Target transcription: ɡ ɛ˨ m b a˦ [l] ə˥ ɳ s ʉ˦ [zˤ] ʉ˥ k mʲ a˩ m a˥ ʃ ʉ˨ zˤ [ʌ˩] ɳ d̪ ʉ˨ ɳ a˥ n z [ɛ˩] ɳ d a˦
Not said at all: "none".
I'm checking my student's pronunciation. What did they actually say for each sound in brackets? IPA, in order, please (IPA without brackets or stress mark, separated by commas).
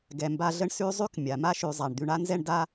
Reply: ɮ, zˤ, a˩, ɛ˥